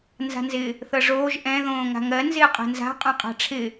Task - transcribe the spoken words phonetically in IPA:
n z a̤ n z ɪ | θ ɤ ʐ oː ʒ ʔ ɛ̃ ð õː ŋ a̤ ŋ ɜ n z ɪː qʼ ɛ̤ n z a̤ qʼ õ qʼ a̤ ʈ͡ʂʰ ɪ

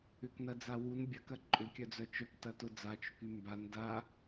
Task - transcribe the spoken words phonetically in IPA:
ʏ k n ɐ d͡z a w u n bʲ ɐ k ɐ ǃʼ ʏ kʲ œ d͡z œ t͡ʃ œ k t ɐ t ʊ d͡z a t͡ʃ ʊ k y m b a n d a

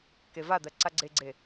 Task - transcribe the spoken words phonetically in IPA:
k e v a d̪ ɜ ǀ a ɡ͡ǀ e ɡ͡ǀ e

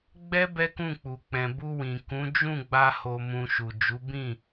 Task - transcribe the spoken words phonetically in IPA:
ɡ͡b ɛ˦ b ɛ˦ k ũ˦˨ k͡p u˨ k͡p ɛ̃˨ b u˧ w ĩ˨ k ũ˨˦ d͡ʒ ũ˦˨ ɡ͡b a˧ h o˧ m ũ˧ ʃ u˨ d͡ʒ u˨˦ b ĩ˦˨

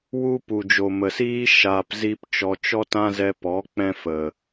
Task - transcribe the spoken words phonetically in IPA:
w u˦ p u˨ d͡ʒ o˨ m ə˨ s iː˦ ʃ aː˧ p z i˦ p t͡ʃ ɔ˧ t͡ʃ ɔ˦ t ã˦ z ɛ˧ p ɔ˨˦ k͡p ɛ̃˦ f ə˨

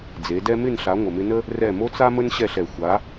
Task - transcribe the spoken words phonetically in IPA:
d͡z e˨˦ d ɛ˦ m ɪ˦˨ n ɬ a˨˦ ŋʷ ə˨ m ɪ˧ n ə˦ | r ɛ˦˨ m o˦ t͡s a˦ m ə˦ n ɕ ɛ˦˨ ɬ ɛ˨ xʷ a˨˦

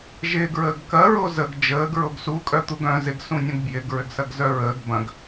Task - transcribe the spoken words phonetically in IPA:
ʒ ɪː ɡ ɹ əː ɡ k ɐ ɹ o z ə ɡ d͡ʒ əː ɡ ɹ o ɡ s u kʼ œ t̪ u ɡ œ̃ z ɪ ɡ s ũ nʲ õ ɡ b j ɪ ɡ ɹ ʏ ɡ s ɐ ɡ z œ ɹ əː ɡ b ɐ̃ ɡ

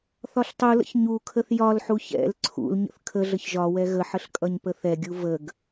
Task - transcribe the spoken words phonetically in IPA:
θ ɒ ɬ tˤ u l ə̰ ç ɲ u kʰ ə θ j ɒ l ħ u ç ɛ̰ l ǀʰ ṵ l ɲ ə̰ θ kʰ ə ɮ ə ç ʒ ɒ w ɛ ɣ ə ħ ə ɬ kʼ ʌ ɲ p ə θ ɛ ɡʲ u v ə ɡ

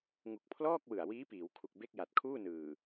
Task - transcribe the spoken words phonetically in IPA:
ŋ u˨˩ k̚ pʰ l ɔː˥˩ k̚ w ɯ˨˩ a̯ w iː˦˥ p iː˩˦ w kʰ u˨˩ k̚ b e˥˩ k̚ j a˨˩ t̚ kʰ uː˥˩ n ɯː˨˩

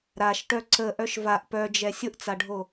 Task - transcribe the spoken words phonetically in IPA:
ɾ a ʃ ʈ œ ǀ ə ʔ œ ʃ v a ʔ p œ d͡ʒ ɛ sʲ ʊ ʔ t͡s a ɖʱ o

